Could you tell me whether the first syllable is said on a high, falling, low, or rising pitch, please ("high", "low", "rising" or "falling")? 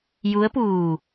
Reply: rising